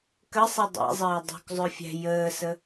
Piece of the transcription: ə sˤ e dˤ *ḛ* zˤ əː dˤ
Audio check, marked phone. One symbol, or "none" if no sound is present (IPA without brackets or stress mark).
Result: ḛ